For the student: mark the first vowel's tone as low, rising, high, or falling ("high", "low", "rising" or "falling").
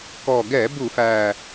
low